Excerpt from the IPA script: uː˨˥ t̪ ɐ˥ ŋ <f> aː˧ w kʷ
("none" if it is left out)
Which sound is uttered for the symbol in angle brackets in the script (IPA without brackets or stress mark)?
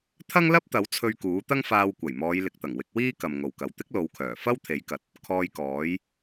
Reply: f